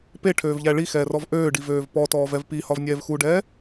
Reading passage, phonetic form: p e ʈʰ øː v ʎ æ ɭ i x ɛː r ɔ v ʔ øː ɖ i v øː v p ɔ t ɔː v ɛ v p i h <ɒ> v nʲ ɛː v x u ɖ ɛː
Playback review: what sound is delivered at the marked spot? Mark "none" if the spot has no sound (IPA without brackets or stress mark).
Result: ɒ